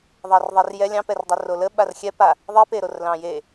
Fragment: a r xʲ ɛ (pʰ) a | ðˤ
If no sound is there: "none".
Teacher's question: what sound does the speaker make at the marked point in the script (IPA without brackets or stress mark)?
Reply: p